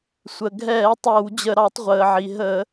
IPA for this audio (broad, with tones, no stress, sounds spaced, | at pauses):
sʷ ə˩ ɡʱ ɛː˧˩˧ tˤ əː˧˩˧ w d͡ʑ ə˧˩˧ ɾ ɑ˧˩˧ tˤ ʁʷ əː˩ ʕ i˩ ɦ ə˧˩˧